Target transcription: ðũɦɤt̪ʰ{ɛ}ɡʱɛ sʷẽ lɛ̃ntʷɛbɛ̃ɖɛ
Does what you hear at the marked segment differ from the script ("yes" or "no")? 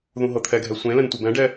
no